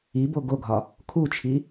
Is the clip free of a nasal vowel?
yes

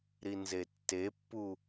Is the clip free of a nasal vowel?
yes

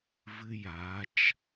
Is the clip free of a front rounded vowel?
yes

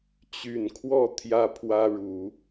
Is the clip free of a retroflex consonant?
no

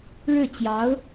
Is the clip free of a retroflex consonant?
no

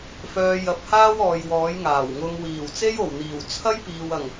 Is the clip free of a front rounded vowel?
no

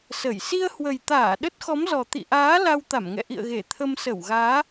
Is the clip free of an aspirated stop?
no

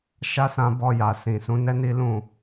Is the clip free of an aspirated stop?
yes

